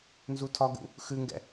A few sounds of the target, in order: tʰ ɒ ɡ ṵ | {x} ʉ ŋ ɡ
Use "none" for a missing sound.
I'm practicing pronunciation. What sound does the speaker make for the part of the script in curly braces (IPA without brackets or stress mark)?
x